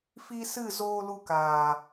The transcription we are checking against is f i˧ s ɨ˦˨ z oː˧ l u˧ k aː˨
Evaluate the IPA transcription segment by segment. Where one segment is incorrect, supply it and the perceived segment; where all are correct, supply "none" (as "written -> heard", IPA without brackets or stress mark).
none